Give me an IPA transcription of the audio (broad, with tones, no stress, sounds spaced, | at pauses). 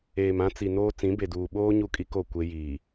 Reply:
eː˨ m ã˦ t͡s i˨ n oː˦ t͡s ĩ˨˦ b e˨ d uː˨ ɓ oː˦ ɲ u˦ kʼ i˦ k o˦˨ kʷ e˦ j iː˨